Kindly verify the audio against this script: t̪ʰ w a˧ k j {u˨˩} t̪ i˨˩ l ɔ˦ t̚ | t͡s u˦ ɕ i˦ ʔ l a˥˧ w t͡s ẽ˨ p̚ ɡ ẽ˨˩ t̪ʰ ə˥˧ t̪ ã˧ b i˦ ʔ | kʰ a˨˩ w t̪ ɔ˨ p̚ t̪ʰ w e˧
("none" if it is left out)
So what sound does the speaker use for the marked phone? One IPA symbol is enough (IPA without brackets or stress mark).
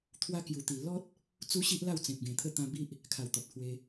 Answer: u˨˩